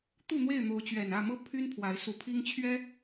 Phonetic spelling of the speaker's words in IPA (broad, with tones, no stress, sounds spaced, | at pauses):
t̪ u˥˨ n̪ w e˥˨ ɪ̯ n̪ o˨˦ ʊ̯ t͡ɕ ɥ ɛ˨˩ n ä˥˨ m ɤ˦ pʰ y˦ n pʰ w a˨˦ ɪ̯ s u˨˦ pʰ i˦ ŋ t͡ɕʰ ɥ ɛ˦